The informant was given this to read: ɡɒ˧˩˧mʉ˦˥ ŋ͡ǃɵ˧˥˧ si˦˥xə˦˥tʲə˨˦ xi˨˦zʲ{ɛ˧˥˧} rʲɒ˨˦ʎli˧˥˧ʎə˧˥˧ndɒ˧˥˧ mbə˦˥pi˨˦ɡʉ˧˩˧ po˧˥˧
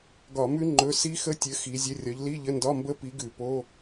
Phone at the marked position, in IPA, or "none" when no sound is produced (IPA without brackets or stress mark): ə˧˥˧